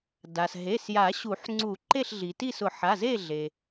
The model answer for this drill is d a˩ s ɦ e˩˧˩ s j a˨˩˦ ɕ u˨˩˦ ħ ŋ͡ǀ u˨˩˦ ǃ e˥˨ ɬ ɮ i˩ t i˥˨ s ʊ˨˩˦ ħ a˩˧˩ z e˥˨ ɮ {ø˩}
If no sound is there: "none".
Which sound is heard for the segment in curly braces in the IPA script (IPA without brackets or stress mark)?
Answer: e˩